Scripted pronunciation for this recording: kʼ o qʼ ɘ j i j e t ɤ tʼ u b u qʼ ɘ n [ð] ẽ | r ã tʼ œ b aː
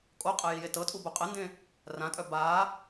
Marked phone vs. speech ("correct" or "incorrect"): incorrect